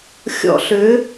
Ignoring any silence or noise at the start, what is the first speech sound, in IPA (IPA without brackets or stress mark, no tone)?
xʲ